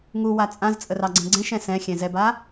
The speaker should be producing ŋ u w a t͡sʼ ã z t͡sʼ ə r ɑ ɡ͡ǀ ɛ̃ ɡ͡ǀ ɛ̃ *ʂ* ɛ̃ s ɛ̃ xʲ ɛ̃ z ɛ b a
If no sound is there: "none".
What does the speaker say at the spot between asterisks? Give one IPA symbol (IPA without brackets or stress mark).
ʃ